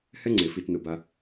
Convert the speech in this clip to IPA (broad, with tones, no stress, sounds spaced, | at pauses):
h ɛ˦ ŋ͡ǀ e˨ f i˧ t n ʊ˧ b a˦